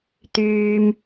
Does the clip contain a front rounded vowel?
yes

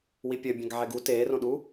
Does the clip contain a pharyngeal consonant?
yes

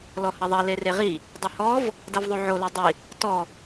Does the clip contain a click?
no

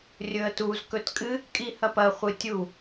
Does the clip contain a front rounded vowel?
no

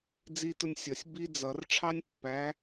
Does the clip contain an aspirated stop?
yes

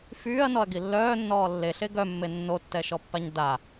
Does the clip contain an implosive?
no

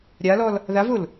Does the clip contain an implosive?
no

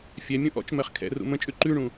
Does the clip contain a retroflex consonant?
yes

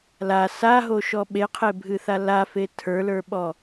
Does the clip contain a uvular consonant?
yes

